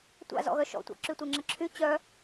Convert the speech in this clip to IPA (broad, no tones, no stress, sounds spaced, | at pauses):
tʷ a̰ z ɔ̰ ɣ œ ʃ ɔ̰ tʷ a̰ ǁ y tʷ ɛ ŋ͡ǁ ə ǁʰ y t͡ɕ œ